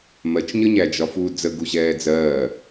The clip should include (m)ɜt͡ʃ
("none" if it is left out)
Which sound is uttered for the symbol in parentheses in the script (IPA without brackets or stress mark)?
m